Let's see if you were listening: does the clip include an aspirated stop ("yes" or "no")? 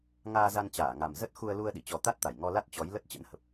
no